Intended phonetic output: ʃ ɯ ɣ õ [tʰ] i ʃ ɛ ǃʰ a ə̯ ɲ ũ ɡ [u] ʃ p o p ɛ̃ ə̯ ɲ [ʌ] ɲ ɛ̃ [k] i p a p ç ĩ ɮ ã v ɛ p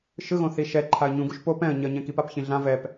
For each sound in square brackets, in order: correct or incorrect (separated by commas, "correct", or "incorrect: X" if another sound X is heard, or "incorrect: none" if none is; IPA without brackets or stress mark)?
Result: incorrect: θ, correct, correct, correct